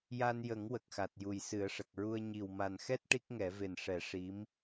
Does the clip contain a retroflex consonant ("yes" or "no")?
yes